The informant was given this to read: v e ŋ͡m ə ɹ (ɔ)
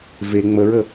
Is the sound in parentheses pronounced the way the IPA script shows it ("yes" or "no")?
no